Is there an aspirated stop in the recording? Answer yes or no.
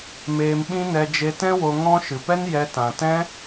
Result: no